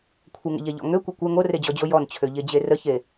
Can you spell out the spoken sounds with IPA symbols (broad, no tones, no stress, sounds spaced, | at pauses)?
kʷʰ ə ŋ ə̰ ʎ ɛ ʎ ɔ̰ ŋ ø kʷ e kʷ ɛ ŋ o r e d͡ʑ ɔ d͡ʑ o j ɔ n t͡ɕʰ ø ʎ e d͡ʑ e r ə ç e